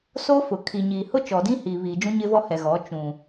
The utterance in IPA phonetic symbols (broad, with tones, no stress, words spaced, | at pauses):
soː˦fʊ˨ kʰi˨ɲiː˨ hʊ˦t͡ʃɔ˨dĩ˦ hiː˨βiː˨d͡ʒũ˦ ɲɪ˦vɔ˦ hɛ˨ɣɔ˨˦ t͡ʃũ˨